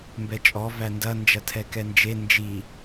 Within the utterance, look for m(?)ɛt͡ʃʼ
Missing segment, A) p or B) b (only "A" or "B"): B